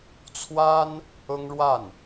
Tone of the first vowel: high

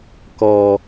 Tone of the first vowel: low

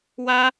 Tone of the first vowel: high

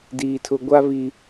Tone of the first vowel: low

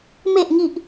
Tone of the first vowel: falling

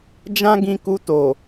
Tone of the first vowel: high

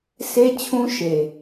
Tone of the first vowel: high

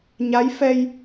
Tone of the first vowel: rising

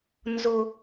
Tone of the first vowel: high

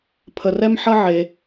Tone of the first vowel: low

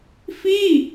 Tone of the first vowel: falling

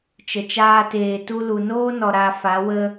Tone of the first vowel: low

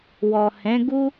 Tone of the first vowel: low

